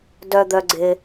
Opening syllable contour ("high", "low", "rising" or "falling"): low